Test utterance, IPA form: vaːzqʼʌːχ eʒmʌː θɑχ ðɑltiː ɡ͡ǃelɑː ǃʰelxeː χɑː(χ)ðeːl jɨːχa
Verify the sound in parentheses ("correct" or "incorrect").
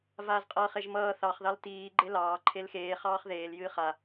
correct